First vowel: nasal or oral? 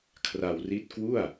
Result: oral